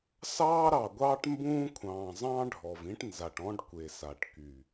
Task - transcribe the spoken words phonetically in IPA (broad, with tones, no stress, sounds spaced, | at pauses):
s ɑː˦ ɾ ɑ˨ ɡʷ ɑː˦ ʈ m b ũː˦ kʷʰ ɑ̃ː˨ zˤ ɑ̃˦ ɖʱ ɔ˨ v ĩ˦ ʈ n z a˨ ʈ ɔ̃˦ ɖ kʷ e˨ s a˨ ʈ k y˨